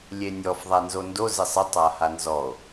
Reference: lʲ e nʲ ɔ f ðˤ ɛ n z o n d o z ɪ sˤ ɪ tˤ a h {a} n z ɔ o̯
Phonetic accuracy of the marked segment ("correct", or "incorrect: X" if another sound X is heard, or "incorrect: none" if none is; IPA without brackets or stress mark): correct